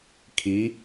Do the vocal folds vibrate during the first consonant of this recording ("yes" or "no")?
no